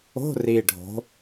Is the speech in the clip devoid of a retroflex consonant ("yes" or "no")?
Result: no